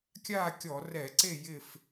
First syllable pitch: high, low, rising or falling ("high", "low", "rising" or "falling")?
falling